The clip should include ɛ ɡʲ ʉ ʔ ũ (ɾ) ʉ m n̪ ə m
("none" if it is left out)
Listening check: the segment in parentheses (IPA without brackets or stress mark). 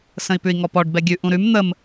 ɾ